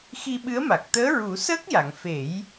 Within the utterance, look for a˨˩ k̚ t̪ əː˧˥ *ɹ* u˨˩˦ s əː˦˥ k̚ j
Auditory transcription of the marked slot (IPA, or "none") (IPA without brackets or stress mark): ɹ